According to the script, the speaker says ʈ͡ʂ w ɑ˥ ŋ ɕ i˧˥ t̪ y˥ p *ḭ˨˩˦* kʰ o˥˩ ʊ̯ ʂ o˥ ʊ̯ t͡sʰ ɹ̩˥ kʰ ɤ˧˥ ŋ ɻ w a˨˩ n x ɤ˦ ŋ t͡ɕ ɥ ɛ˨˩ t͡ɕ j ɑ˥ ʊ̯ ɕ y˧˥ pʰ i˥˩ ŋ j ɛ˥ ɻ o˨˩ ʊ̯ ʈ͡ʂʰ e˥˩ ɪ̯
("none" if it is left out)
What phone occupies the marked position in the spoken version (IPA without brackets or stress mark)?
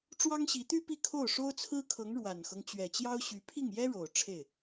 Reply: i˥˧